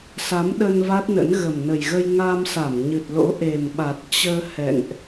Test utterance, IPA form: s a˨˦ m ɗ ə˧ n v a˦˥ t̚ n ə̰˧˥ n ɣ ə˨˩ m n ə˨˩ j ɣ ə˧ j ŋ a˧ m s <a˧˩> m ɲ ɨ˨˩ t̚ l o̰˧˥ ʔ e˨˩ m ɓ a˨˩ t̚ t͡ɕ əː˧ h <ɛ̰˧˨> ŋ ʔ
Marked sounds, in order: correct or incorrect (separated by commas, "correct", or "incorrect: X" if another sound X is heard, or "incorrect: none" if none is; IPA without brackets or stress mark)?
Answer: correct, correct